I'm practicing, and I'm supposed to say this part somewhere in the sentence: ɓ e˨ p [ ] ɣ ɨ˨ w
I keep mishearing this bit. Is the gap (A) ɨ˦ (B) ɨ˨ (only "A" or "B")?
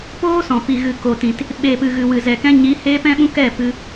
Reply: B